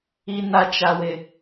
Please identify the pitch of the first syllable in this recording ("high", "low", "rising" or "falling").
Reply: high